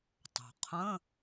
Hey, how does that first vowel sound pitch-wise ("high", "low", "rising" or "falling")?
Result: low